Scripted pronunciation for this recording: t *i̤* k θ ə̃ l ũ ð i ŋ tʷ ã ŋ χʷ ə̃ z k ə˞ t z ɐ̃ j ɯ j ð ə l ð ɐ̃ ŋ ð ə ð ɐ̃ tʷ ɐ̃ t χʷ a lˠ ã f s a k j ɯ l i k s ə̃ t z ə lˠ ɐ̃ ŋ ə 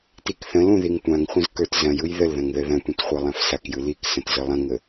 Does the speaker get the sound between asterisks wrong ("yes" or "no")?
yes